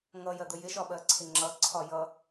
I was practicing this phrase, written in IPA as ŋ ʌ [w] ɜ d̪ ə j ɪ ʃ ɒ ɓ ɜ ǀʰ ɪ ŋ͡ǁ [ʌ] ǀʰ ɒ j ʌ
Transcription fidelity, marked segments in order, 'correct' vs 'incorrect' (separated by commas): incorrect, correct